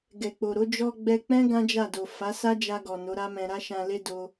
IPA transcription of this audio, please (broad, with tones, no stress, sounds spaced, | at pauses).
ɡ ɛ˨ k͡p o˨ ɾ o˨˦ d͡ʒ ɔ˧ ɡ͡b ɛ˧ k͡p ɛ̃˦ ɡ ã˦ d͡ʒ a˦˨ d o˨ f a˨˦ s a˦ d͡ʒ a˧ ɡ ɔ˨ n o˨˦ ɾ a˦ m ɛ̃˧ ɾ a˦ ʃ ã˧ l e˦ d o˧